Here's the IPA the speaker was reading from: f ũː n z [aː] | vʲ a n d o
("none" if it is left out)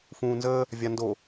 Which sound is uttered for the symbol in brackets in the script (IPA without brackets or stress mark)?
əː